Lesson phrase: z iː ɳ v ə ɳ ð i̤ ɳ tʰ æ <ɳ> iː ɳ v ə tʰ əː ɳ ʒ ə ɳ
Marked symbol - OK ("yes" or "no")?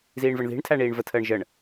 yes